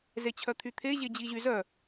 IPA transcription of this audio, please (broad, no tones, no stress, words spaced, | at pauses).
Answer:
zet͡ɕʰœt̪ʰyt̪ʰe ʑed͡ʑiʑyzœ